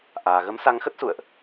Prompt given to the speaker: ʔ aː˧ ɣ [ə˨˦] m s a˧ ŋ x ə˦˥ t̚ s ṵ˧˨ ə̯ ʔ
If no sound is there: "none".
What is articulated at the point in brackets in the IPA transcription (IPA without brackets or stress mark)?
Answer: ə˨˦